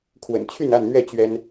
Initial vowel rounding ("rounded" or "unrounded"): unrounded